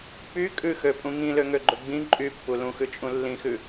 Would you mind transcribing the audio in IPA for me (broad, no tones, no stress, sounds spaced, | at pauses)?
p y kʼ ʉ x ø pʼ ũ ŋ ĩ l ø ŋ ø ɡ͡ǃ ɵ ɡ͡b ĩ ǃʼ y pː u l ũ x ʉ t͡ʃʼ ũ lː ĩ x ʉ